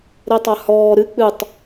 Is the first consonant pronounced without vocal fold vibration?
no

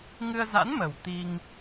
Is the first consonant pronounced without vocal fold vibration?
no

